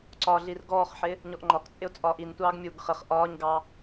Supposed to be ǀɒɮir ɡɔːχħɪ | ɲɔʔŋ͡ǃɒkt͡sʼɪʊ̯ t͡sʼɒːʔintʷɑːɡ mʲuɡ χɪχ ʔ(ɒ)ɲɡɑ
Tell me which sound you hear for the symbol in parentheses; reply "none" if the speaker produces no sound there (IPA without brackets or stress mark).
ɒː